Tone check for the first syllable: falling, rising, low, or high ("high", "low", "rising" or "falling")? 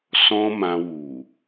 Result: high